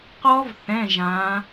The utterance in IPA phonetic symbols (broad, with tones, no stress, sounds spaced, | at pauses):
q ɔ˦˥ v θ ɛ̃˧˥˧ ʒ ã˨˦